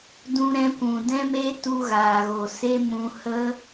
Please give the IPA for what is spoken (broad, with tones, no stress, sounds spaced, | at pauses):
d ũ˦ ɾ ɛ̃˦ kʷ ũ˨ d ɛ̃˦ m e˦ t u˦ ɣ aː˨ ɣ o˨ s e˦ m ũ˧ h ə˦